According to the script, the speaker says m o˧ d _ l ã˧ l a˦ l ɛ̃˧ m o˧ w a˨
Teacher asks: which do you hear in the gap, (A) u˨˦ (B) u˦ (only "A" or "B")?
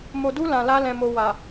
B